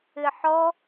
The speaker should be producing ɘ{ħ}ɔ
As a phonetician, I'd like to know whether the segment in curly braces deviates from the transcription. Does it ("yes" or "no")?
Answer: no